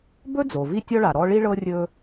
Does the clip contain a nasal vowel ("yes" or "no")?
no